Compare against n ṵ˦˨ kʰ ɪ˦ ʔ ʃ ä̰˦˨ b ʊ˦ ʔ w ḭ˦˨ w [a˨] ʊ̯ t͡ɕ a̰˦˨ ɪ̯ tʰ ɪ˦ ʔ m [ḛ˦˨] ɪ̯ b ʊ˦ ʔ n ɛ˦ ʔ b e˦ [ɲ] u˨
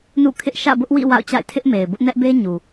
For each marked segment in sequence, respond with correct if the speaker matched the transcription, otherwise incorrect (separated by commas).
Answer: incorrect, incorrect, correct